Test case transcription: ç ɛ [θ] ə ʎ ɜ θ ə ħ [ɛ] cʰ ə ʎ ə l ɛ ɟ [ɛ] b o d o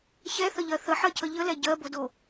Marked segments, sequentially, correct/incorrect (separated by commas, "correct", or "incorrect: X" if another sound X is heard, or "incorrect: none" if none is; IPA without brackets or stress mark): correct, incorrect: ɜ, incorrect: ɜ